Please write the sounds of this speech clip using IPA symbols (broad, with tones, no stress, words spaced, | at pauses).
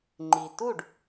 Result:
ŋ͡ǃi˩tu˥˩ɖ